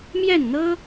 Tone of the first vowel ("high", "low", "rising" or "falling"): falling